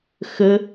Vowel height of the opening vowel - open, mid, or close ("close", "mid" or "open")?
mid